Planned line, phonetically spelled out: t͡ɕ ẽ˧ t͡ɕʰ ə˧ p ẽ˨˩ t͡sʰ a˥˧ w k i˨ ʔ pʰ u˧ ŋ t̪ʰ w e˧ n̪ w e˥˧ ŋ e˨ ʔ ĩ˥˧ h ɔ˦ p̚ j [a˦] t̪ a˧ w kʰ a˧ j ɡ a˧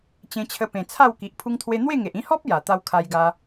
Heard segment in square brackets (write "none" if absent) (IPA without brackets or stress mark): a˨˩